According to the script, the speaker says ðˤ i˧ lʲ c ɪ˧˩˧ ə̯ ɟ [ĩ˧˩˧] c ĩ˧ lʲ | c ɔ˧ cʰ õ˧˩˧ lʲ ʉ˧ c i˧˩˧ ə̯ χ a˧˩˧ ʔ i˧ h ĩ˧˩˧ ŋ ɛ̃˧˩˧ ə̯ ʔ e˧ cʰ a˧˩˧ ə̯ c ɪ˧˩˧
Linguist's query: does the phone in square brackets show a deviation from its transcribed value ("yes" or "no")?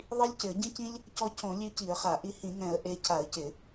yes